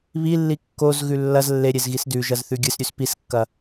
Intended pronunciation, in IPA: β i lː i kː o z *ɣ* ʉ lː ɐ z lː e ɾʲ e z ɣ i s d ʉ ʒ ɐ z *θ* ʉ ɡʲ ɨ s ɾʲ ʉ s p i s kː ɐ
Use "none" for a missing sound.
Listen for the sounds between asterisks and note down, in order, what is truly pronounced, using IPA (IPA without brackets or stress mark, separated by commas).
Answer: ɣ, θ